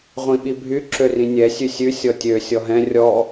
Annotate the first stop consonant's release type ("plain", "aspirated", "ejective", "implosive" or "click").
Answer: implosive